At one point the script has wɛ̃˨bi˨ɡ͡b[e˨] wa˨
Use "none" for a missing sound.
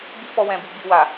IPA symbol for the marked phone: i˨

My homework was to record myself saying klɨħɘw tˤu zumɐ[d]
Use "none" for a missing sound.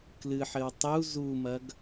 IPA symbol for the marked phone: ɡ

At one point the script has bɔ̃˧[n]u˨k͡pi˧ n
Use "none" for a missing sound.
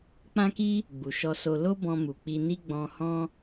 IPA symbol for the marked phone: m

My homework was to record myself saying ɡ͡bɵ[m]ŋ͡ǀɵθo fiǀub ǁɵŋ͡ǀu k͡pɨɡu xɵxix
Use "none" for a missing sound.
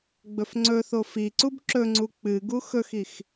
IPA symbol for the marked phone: f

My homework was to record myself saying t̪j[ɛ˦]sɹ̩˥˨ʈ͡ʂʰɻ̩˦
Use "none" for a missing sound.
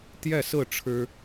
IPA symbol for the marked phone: ɛ˥˨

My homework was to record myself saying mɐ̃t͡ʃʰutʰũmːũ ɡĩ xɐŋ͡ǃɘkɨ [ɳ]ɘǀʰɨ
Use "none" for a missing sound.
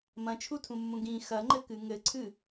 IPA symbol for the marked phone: ŋ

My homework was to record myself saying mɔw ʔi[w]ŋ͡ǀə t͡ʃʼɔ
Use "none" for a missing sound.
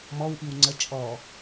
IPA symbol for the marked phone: w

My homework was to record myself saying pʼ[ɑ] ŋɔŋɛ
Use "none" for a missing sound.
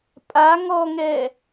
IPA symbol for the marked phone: a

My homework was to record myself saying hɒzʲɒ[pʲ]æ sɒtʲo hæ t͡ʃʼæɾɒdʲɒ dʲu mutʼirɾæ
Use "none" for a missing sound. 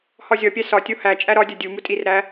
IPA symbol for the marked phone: pʲ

